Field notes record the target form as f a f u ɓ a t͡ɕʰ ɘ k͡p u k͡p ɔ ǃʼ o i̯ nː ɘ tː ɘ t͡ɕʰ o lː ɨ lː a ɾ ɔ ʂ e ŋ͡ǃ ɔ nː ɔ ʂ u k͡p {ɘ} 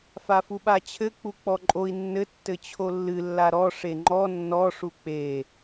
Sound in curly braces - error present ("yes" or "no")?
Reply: yes